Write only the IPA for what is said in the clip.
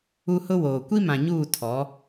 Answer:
u˦hʊ˦woː˨ kʷi˦mã˨ɲuː˦˨ tʰɔ˨˦

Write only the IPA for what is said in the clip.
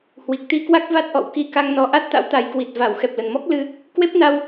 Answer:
hwi˨˩k̚t̪i˧kwa˦˥k̚ va˦˥t̚ʔɔ̰˧˨wki˧ ka˧ŋnɔ˨˦ʔa˦˥t̚t̪a̰˧˥w t̪a˨˦jkwi˨˩t̚ va˧˩w xɛ˨˩p̚lə˨˩nmɔ˦˥k̚ lɨ˧ | kwe˦˥p̚na˧w

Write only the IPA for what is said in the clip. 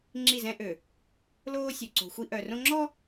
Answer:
ŋ͡ǁi˦˨zɛ̃˦ʔø˨ | loː˦sʲø˨ǀo̤˨xʷi˦ ʔœ˨rõ˦ ŋ͡ǁɔ˦

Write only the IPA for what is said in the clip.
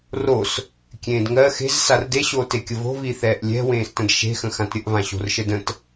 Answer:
ros | kʲẽːdŋɜ xe̤z sarde ɕoːtekʲəvo̤ viθɛːʔlʲɛ̤ wẽːstə̃dʃe̤ xə̃xãtɾʲəʔ vãɕo̤rʃədə̃t

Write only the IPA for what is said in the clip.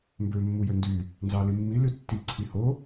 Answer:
mbø mːujøndy | nzɑlimːi lytːi ǀʰiho

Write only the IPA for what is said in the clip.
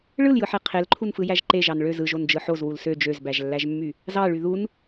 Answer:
ɭɯljɯħe qʰelǃʰunfɯjæʒ ǃeʒɑn ɭøz ɯʒond͡ʒɯ ħozwul sø d͡ʒøzbæʒlːæʒmːy | zɑɭy ðun

